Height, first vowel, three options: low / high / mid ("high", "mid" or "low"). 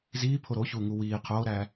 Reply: high